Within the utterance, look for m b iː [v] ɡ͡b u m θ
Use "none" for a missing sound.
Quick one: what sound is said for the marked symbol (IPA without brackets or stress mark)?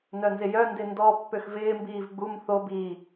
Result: v